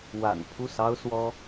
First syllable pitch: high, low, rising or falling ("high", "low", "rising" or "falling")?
low